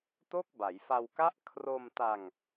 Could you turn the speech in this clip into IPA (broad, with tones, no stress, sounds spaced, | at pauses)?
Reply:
t o˥˩ k̚ b a˩˦ j f a˧ w k a˥˩ ʔ kʰ r o˧ m t a˧ ŋ